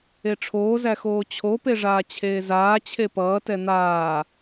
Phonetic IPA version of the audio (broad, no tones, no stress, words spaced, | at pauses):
eʈ͡ʂʰoː zæxoːt͡ɕʰo peʐaːt͡ɕʰeːzaː t͡ɕʰepʌː tɛn̪aː